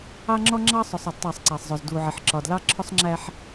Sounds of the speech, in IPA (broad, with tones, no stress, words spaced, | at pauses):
ɑ˦ŋ͡ǁɔ˦ŋ͡ǁɑ˦ sˤʊ˨sˤ ʌ˨dtˤæ˦˨sˤ ǀæ˨sˤzˤʊ˨z du˨ʕɪ˨ħǁɒ˨d lɑ˦ǁʰʊ˦sˤŋ͡ǁæ˦ħ